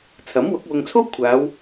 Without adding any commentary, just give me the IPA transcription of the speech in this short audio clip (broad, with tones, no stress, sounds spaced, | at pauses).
t͡sʰ ɐ˨˥ m w ʊ˨˥ k̚ w ʊ˧ ŋ t͡sʰ o˥ w kʷʰ aː˨˧ w